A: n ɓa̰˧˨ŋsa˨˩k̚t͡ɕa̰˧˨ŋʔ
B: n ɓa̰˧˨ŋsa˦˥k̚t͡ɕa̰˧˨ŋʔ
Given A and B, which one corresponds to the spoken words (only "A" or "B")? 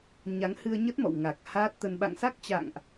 B